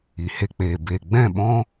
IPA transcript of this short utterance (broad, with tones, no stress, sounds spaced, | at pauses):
i˨ h e˧ k͡p eː˨ b e˨ ɡ͡b ɛ̃˦˨ ɓ ɔ̃˦